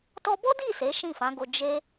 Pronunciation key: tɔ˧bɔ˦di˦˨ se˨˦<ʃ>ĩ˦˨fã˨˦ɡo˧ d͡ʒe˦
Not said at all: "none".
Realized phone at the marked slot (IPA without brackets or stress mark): ʃ